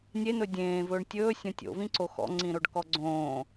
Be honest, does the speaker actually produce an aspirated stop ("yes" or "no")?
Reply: no